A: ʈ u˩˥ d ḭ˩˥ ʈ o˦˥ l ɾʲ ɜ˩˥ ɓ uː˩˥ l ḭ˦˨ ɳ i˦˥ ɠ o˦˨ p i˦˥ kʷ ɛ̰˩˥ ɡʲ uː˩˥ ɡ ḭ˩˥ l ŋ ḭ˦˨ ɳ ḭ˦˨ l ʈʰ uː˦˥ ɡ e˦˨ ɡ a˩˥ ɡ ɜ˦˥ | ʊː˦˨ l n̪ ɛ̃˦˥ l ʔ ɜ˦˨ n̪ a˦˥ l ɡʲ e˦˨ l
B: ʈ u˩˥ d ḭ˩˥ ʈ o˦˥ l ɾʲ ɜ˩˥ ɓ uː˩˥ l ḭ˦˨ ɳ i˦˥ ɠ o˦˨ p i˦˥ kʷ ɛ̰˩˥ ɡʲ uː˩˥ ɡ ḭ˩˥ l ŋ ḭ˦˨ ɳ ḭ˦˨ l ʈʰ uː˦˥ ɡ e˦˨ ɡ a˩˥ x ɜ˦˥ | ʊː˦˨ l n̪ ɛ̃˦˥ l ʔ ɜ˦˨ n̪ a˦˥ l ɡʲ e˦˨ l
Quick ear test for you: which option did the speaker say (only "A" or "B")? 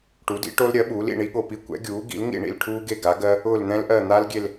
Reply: A